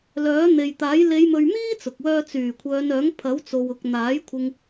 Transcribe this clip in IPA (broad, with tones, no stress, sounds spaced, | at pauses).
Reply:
l œː˨˥ n̪ e˨ j t̪ aː˨˥ j l e˨˧ j m ɵ˨ ɥ m iː˥ t͡s ʊ˨ k̚ w œː˥ t͡s yː˨˩ kʷʰ œː˨˧ n œː˨˥ ŋ pʰ ɐ˨˥ w t͡s o˨ w ʊ˨ k̚ n̪ aː˨˥ j kʷʰ ɪ˧ ŋ